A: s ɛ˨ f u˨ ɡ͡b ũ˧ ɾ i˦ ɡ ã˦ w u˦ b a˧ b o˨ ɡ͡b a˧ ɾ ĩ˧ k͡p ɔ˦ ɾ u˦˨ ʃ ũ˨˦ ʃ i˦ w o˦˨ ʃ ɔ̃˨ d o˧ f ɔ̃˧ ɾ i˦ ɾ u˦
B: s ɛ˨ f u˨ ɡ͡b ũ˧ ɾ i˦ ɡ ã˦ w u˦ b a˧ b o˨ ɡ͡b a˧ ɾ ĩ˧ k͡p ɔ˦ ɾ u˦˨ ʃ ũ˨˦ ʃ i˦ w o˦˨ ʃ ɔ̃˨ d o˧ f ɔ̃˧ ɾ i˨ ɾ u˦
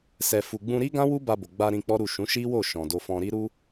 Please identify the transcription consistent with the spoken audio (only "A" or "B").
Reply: A